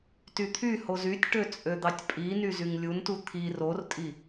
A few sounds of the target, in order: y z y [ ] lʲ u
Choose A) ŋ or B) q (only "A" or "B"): A